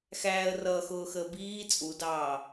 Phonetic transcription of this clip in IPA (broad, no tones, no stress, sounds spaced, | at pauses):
x æː ə̯ r ʌː x ʊː x əː b iː t͡sʼ u d ɑː